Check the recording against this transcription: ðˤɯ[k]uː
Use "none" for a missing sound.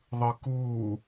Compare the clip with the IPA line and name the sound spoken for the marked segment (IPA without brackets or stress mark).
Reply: k